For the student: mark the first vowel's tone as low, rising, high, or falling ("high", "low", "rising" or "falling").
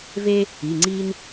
high